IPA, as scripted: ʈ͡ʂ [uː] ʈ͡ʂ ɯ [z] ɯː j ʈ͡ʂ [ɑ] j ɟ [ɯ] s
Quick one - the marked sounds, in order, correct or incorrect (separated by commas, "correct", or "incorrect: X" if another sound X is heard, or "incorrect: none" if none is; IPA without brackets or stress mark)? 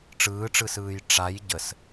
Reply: incorrect: ɯː, incorrect: s, incorrect: a, incorrect: ə